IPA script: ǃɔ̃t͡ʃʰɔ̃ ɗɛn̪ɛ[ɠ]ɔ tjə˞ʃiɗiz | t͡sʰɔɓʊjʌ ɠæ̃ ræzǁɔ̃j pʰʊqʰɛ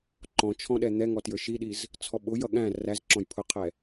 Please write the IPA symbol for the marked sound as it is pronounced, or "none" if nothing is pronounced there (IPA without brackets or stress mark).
ŋ